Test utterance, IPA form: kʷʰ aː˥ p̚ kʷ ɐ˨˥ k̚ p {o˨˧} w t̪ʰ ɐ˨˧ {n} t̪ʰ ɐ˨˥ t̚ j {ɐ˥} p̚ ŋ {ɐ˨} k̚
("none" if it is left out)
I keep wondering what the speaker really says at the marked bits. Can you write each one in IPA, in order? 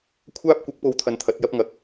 o˨˧, n, ɐ˥, ɐ˨

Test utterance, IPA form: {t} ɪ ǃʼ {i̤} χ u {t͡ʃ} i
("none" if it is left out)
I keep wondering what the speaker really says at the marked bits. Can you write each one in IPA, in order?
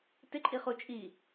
t, i, t͡ʃʼ

